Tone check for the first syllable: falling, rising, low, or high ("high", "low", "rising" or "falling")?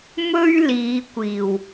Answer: high